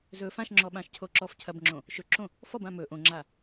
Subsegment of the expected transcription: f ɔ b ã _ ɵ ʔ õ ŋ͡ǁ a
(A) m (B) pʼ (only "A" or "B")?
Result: A